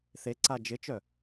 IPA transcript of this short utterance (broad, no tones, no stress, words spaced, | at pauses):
θeǀa d͡ʒɪt͡ʃœ